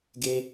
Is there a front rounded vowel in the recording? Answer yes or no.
no